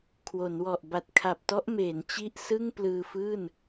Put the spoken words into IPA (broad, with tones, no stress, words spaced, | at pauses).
kʰwo˩˦nwɔ˨˩ʔ ba˨˩t̚kʰa˨˩p̚tɔ˦˥ʔmeː˩˦n t͡ɕi˥˩ʔ sɯ˥˩ŋplɯː˧fɯː˥˩n